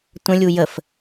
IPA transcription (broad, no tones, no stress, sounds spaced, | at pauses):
tʷ ə̃ lʲ u j ə f